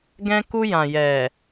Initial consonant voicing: voiced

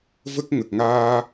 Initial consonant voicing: voiced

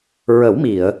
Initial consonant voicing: voiced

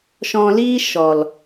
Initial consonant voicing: voiceless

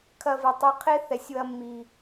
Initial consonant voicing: voiceless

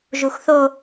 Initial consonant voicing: voiced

